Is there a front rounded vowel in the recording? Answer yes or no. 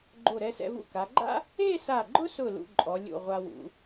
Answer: no